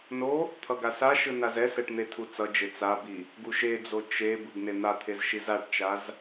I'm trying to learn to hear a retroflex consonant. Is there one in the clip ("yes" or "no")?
yes